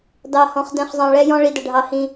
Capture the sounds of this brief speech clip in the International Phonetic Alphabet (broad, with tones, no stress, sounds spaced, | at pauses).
d ɑ˧ h ɔ̃˧ χ d ɛ̃˧ χ zˤ ɑ̃˧ ɭ ɛ˧ j ɔ̃˧ ɭ i˧ d ə˧ ɖʱ ɑ˧ h ĩ˧